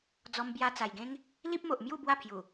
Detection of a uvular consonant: absent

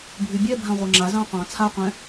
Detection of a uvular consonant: present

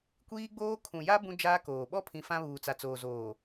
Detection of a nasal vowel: present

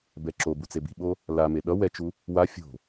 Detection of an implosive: present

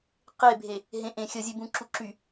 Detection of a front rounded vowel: present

